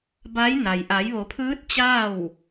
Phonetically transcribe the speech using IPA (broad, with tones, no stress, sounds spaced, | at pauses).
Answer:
b a˧˥ j n a˩ j ʔ a˩˧ j ʋ o˩˧ pʰ ɯː˧˥ t̚ t͡ɕ aː˥˨ w